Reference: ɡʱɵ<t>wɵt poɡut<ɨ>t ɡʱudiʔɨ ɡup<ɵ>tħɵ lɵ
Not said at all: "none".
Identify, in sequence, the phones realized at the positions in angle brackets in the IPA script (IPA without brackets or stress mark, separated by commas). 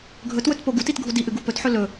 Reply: t, i, ɵ